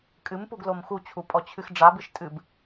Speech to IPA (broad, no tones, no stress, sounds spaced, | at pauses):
kʼ ɨ m p u ɡ l o m x u t͡ɕʰ u pʼ ɔ t͡ɕʰ ɨ x ɖ͡ʐ a b ɨ ʃ tʼ ɨ b